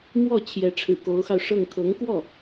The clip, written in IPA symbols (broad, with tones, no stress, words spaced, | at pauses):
mwɔ˥˩ t͡ɕʰjɛ˧˥ʈ͡ʂʰɻ̩˨˩ko˧˥ʊ̯xɑ˧ʊ̯ ʂɤ˥˩ŋ kʰɤ˧˥ŋkwɔ˥˩